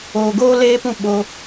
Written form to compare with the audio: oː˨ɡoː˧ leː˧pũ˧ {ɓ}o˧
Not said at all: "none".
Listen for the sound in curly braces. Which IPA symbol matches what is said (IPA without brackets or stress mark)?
ɓ